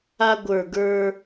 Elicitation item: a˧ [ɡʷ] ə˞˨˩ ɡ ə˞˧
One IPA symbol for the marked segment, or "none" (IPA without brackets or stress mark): ɡʷ